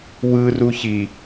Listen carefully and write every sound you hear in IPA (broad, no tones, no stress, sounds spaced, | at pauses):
w ɯ r u ç i